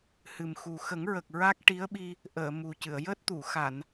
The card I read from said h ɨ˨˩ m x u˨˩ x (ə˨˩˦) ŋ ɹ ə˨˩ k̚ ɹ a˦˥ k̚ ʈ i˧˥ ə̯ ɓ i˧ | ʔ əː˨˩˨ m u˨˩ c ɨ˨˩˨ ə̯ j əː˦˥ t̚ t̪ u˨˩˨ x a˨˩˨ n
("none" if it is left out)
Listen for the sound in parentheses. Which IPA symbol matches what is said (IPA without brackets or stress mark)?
ə˨˩˦